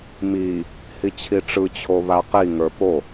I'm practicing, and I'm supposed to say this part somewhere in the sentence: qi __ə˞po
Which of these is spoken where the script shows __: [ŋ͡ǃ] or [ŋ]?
ŋ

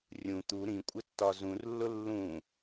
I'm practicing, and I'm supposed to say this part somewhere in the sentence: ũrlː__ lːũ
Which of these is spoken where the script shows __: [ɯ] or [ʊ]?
ʊ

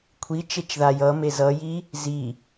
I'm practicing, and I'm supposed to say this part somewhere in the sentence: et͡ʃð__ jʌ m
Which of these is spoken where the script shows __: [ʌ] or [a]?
a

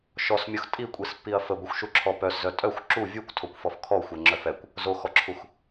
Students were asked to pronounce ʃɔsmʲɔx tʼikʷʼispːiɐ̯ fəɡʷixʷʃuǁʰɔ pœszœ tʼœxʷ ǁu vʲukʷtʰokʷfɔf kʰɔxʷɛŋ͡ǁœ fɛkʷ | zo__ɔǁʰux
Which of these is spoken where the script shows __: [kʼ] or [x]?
x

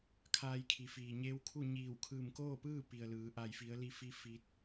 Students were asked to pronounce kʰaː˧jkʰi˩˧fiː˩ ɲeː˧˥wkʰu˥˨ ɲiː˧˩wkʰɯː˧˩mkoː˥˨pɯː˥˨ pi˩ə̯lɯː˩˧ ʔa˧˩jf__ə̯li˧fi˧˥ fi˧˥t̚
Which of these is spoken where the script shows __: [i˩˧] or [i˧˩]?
i˩˧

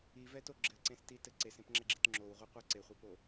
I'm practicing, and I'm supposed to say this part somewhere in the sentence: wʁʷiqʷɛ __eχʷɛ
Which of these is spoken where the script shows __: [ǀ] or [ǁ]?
ǀ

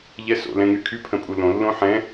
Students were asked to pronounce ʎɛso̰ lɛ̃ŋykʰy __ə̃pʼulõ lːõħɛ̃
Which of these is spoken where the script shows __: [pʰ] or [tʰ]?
pʰ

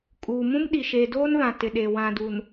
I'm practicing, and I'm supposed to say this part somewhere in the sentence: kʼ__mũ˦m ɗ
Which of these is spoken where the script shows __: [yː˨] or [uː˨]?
uː˨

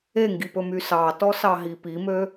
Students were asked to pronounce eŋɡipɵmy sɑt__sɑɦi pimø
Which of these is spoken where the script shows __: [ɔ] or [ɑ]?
ɔ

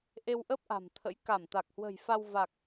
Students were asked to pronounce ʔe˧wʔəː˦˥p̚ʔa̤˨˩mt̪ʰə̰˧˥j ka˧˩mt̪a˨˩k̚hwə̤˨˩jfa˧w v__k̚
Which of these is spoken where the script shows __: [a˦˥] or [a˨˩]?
a˨˩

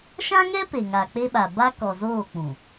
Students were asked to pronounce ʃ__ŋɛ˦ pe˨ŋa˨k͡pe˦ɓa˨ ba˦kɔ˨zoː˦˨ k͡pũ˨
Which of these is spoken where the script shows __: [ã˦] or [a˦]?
ã˦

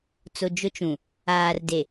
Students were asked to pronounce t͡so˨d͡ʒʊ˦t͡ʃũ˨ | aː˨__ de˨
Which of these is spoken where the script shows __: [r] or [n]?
r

